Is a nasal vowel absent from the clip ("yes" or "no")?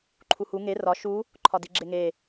yes